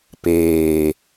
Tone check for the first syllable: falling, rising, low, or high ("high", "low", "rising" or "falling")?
low